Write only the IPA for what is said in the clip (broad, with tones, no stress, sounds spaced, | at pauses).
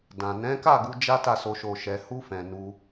d ã˨ n ɛ̃˨˦ k a˦˨ ɡ u˧ d͡ʒ a˦ t a˦˨ s o˧ ʃ o˨ ʃ ɛ˨ h u˧ f ɛ̃˨ n u˧